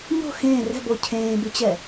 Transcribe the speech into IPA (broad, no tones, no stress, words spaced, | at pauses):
ɲo̤ xẽː rɛ̤bo cʰẽːbyt͡ɕɛ